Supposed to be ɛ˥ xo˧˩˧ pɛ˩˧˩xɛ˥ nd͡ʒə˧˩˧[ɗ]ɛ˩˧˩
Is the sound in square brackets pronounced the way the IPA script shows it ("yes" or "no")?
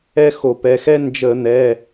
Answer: no